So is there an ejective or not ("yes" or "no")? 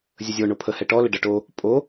yes